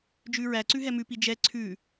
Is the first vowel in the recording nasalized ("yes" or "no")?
no